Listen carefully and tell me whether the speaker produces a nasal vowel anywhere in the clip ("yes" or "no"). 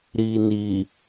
no